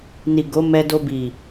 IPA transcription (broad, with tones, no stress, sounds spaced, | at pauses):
n i˨ ɡ o˨˦ m ɛ˧ d o˧ b i˨